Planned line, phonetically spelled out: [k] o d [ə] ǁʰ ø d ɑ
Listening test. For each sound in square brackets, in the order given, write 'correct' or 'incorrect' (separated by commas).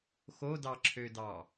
incorrect, incorrect